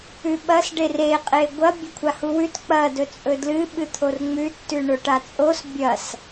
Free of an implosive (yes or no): no